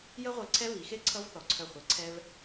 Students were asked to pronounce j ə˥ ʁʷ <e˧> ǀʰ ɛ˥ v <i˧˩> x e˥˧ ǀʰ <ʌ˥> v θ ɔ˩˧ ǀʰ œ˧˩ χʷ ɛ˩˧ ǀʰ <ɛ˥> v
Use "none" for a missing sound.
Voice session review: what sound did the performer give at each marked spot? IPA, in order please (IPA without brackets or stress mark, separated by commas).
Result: e˧, i˩˧, ʌ˥, ɛ˧